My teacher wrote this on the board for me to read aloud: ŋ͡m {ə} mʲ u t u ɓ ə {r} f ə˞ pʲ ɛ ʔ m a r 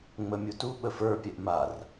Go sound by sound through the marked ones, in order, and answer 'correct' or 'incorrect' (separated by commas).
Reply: correct, incorrect